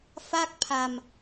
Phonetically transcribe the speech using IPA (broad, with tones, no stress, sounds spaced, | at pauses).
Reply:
f a˥˩ k̚ pʰ a˧ m